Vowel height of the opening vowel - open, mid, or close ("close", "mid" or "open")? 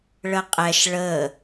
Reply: mid